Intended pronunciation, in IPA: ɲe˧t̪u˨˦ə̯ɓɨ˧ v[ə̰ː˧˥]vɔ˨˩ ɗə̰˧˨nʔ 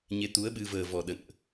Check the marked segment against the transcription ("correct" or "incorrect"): incorrect